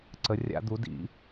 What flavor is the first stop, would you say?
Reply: click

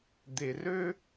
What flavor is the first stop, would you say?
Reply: plain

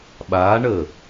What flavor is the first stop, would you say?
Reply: implosive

